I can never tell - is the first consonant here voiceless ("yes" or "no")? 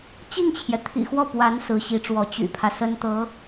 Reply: yes